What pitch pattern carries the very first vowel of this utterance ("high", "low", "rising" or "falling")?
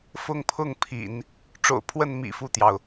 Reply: high